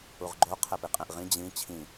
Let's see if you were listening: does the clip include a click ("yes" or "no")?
yes